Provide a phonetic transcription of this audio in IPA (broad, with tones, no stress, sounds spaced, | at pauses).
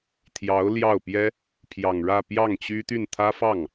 t̪ʰ j ɑ˧˥ ʊ̯ l j ɑ˥˩ ʊ̯ p j ɛ˥ | pʰ j ɑ˨˩ ŋ ɻ ä˥˧ p j ɑ˥˩ ŋ t͡ɕ y˥ t̪ y˥˩ n t̪ʰ ä˥ f ɑ˥˩ ŋ